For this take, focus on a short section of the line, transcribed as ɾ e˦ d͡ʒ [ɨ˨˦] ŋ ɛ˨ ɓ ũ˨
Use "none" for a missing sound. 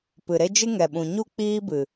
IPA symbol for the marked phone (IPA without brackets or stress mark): ɨ˦